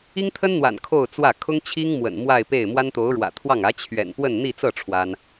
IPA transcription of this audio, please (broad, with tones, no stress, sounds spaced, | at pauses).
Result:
i˥ ŋ t̪ʰ ə˥ n n̪ w a̰˨˩ n kʰ o˥˧ ʊ̯ t͡s w ä˥˩ kʰ ʊ˥ ŋ t͡ɕʰ i˥ ŋ m w ə̰˨˩ n m w a˥˧ ɪ̯ p e˥˩ ɪ̯ m w a˥ n t̪ o˧˥ ʊ̯ ɻ w ä̰˨˩ t̪ʰ w ɑ˥˩ ŋ ä˧˥ t͡ɕʰ ɥ ɛ̰˨˩ n p w ə˥˧ n n̪ i˥˧ t͡s ɤ˥˩ ʈ͡ʂʰ w a˥ n